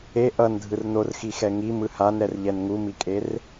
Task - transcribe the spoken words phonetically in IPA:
e ʔ ʌ n dʱ ɯ r n o r x i x ɛ ŋ i m ɯ h a n ɾ ɛ r ʎ ɛ n ŋ u m i kʼ e r

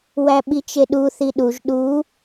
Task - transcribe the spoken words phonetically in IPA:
w æ ɓ i t͡ʃ e ɗ u θ i ɗ u ʒ ɗ u

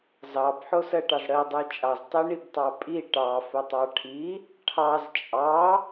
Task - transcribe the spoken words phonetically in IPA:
z ɑ b ħ o s ɜ ʈ ɑ z ɽ ɜ dˤ ə j t͡ʃʼ ɑ z tˤ i ɳ i b tˤ ɑ pʼ i ʈ ɑ f ə tˤ ɑ ʈʰ i | ʈʰ ɑ z t͡ʃʼ ɑ

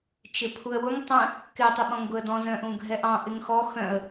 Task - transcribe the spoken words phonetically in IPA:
t͡ʃ ɪ pʰ u ə̯ w ʊ ŋ tˤ ə̃ | k ɪ tˤ ɪ ɓ ɔ̃ ŋ ɡ ʊ ə̯ d ɔ̃ z œ̃ ʔ ũ ɡʱ ɛ ʔ ɑ̃ ʔ ɪ ŋ x ɔ x œ̃ ə̯

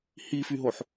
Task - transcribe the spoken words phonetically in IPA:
h i f y ɦ o ħ

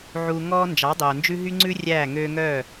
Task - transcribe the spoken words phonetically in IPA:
ʕ uː˧ ŋ ɔː˦ n d͡ʒ ɑ˨˦ dˤ oː˨ n d͡ʒ ʉ˦ ɦ y˦ ŋ͡ǀ ʉ˦ rʲ æː˦˨ ŋ øː˧ ŋ œː˦˨

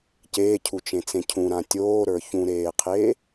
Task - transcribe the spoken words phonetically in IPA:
c eː cʰ u t͡ʃ ẽ t͡s ẽ cʰ ũ ɾ ã tʲ oː ɾ ə˞ ç ũ ɾ eː qʰ eː

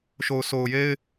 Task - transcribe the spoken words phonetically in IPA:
ʃ o˨ ʊ̯ s o˨ ʊ̯ j e˦ ɪ̯

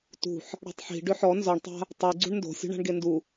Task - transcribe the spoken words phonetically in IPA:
t ṳ ħ | ɽ a̤ tˤ ħ i̤ ɖ ʏ ħ ɔ n z ɔ ɳ tˤ a̤ | tˤ i ɡ͡ǀ ṳ ɳ n d o̤ sʲ ṳ ɳ a̤ ɳ ɡ e n d u

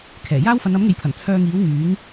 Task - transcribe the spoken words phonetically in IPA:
kʰ ɛː˨˩ j aː˥ w f ɐ˨˧ n ɐ˨˥ m ŋ e˨ j pʰ ɐ˨˩ n t͡sʰ œː˧ ŋ iː˨˥ w ŋ yː˨˥ ŋ

